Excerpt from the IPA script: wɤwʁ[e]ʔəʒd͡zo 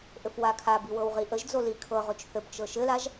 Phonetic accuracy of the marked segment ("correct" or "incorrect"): incorrect